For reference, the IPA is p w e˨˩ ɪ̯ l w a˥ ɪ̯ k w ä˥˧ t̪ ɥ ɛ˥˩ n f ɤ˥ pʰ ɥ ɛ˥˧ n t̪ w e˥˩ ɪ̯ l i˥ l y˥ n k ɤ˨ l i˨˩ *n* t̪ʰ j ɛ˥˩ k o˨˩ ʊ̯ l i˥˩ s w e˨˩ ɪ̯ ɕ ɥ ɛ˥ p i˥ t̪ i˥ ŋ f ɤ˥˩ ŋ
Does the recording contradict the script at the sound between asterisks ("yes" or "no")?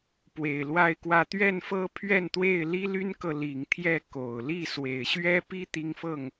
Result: yes